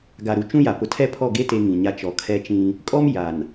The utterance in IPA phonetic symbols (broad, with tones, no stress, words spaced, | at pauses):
ɡa˨ɾu˨t͡ʃũ˦ ja˨pʊ˨tʰɛ˦pʰɔ˦˨ ɡe˦ te˦ŋĩ˨ɲa˦ t͡ʃɔ˨kʰɛ˦t͡ʃĩ˦ | kʼɔ˦m ja˨n